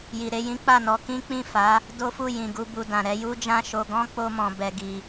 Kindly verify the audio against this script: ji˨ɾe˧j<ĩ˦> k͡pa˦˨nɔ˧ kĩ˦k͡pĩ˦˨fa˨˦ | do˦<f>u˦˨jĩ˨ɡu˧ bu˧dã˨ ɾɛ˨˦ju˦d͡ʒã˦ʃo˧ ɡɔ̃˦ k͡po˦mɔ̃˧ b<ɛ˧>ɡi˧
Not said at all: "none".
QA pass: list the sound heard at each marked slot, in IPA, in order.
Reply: ĩ˦, f, ɛ˧

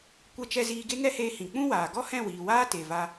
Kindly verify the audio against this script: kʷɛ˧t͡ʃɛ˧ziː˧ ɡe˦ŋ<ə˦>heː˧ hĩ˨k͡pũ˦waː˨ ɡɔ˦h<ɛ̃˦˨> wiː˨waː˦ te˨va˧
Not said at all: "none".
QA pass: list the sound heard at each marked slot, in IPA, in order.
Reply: ɛ˦, ɛ̃˦˨

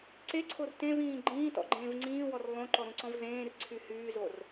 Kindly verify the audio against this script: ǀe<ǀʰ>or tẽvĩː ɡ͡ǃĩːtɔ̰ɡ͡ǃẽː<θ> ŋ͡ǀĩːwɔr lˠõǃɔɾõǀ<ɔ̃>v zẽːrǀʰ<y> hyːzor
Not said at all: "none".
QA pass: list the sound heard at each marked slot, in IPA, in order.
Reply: ǀʰ, v, ɔ̃, y

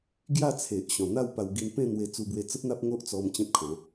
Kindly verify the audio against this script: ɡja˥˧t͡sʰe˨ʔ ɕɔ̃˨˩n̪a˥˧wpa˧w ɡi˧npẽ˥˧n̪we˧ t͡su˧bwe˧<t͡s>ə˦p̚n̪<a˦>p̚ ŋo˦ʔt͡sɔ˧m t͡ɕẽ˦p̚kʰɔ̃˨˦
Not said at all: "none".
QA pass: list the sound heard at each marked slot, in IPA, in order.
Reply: t͡s, a˦

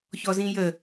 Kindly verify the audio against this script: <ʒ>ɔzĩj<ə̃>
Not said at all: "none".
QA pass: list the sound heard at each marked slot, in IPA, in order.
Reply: ç, ə

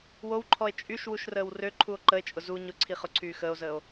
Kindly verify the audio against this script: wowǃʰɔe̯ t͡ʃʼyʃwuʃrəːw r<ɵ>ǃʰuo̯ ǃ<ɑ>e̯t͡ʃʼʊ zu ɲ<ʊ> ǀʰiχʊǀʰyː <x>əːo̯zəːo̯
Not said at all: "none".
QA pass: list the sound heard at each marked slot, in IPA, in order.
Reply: ø, ə, ʊ, x

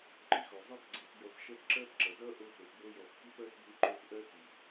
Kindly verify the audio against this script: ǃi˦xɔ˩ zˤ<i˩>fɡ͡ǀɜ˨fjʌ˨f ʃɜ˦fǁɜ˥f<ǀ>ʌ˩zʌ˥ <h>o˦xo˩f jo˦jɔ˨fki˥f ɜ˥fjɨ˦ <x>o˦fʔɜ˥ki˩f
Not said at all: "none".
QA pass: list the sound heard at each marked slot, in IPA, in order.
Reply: i˦, ǁ, ʔ, ǃ

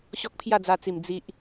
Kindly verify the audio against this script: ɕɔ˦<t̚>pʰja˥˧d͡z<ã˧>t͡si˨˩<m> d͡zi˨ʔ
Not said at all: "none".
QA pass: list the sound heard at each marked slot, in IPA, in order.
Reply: k̚, a˧, m

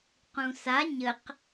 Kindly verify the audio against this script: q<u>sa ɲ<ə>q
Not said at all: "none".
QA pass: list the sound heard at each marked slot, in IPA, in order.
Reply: ũ, ə

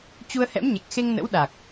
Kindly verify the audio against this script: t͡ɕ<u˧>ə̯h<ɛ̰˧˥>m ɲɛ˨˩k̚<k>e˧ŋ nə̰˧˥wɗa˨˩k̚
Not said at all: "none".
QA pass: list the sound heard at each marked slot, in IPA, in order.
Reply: u˧, ɛ̰˧˥, x

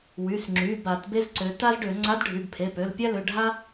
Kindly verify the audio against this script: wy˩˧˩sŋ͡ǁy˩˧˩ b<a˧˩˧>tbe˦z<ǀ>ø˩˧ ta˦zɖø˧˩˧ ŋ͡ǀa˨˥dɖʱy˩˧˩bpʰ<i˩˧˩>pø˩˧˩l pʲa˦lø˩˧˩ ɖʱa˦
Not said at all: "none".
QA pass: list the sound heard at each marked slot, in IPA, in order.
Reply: a˧˩˧, ǀ, e˩˧˩

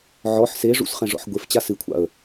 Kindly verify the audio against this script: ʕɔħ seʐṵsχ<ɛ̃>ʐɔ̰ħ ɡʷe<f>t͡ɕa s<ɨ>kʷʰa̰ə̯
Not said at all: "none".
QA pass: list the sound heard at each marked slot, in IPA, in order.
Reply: ɛ̃, f, ɨ

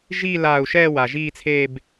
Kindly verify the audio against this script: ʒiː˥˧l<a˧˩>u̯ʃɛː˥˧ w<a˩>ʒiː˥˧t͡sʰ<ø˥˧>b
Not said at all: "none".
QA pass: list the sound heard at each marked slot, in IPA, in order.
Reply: aː˧˩, a˩, e˥˧

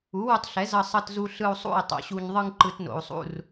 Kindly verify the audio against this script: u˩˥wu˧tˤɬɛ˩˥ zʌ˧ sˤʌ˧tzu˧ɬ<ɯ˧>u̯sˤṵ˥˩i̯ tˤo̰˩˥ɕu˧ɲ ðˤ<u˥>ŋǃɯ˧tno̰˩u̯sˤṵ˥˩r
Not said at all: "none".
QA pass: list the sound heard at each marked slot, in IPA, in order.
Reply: ɯ˧, ɯ˥

